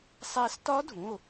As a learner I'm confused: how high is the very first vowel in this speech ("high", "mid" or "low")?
low